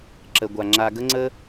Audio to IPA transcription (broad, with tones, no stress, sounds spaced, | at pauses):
ǁ ə˧ ɡʷ a˧ ŋ͡ǁ a˧ ɡ ə˦ ŋ͡ǀ ə˦